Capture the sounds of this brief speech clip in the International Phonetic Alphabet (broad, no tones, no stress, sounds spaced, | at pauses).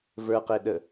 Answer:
v ə˞ q e ɗ ə